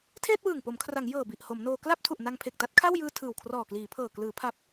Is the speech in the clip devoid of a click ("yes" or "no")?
yes